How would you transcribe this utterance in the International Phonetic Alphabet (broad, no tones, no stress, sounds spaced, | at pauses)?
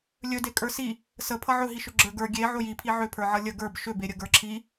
lʲ ɵ d e kʼ ə˞ s i | s ə pʰ ʌ ʕ ɵ ɦ i ʃ ʏ ɡ͡ǁ ə˞ ɡ ə˞ ɡʲ e ʕ o j i pʰ i ʕ ʏ pʰ ə˞ ʕ ʌ lʲ ə ɡ ə˞ b ʃ ʏ b e ɾʲ ə ɡ ə˞ ǁʰ i